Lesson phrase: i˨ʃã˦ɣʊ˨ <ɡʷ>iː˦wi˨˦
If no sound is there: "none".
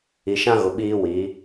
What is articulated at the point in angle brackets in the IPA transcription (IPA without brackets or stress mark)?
ɓ